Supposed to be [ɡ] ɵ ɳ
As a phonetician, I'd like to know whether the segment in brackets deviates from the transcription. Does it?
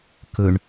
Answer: yes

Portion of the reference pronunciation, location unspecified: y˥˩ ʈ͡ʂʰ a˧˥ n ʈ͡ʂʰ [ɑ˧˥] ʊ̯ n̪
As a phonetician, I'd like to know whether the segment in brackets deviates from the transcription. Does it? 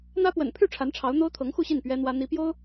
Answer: no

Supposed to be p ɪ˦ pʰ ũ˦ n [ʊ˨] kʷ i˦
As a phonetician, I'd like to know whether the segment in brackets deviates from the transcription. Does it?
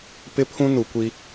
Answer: yes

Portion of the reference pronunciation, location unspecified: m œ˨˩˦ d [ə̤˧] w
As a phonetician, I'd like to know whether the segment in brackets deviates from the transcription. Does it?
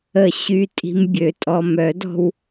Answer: yes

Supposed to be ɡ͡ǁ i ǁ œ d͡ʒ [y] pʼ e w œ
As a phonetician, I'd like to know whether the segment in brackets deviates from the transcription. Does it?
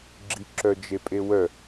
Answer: yes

